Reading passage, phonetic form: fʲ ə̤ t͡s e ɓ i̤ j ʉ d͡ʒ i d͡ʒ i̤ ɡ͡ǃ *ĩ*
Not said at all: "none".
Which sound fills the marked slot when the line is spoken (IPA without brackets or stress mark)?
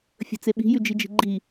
i